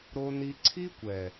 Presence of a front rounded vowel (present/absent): absent